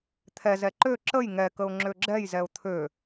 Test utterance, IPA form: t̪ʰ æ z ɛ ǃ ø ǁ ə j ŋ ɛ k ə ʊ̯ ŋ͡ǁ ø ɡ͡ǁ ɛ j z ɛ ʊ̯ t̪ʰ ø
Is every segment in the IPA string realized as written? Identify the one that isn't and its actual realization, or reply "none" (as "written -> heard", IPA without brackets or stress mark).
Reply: æ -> ɛ